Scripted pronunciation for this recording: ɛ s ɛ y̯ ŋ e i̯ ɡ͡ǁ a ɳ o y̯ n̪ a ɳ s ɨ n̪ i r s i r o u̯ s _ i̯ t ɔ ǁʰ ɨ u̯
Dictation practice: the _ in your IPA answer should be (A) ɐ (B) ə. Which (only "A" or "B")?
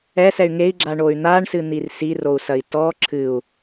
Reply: A